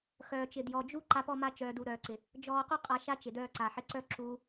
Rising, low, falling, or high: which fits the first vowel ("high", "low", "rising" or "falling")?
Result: low